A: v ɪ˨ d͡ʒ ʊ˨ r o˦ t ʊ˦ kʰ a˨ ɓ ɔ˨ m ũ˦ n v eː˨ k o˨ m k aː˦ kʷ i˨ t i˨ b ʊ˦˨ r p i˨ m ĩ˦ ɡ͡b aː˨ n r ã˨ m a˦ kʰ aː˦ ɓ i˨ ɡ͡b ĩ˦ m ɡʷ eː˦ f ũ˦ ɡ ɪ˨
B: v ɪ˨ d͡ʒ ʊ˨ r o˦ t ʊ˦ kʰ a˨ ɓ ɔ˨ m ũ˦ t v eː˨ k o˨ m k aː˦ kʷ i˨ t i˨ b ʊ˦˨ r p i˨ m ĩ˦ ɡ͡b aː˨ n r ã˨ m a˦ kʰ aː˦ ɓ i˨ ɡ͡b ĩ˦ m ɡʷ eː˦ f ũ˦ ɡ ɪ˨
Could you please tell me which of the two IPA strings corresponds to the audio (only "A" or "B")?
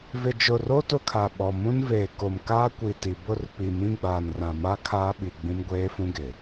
A